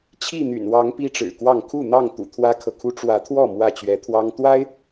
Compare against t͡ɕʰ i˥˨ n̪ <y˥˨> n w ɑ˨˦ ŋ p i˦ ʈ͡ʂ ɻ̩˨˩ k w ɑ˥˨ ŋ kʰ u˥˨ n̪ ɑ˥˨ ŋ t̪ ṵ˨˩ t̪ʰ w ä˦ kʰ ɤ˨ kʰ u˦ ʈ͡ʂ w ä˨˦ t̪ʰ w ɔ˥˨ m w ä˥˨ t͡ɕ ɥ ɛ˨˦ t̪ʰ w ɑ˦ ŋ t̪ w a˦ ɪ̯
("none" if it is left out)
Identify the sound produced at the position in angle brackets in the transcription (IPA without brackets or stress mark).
y̰˨˩